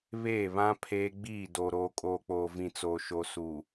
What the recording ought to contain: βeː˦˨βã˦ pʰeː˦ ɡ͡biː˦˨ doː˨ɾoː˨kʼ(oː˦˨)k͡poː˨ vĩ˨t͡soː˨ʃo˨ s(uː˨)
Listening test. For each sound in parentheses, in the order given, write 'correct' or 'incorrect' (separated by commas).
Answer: incorrect, correct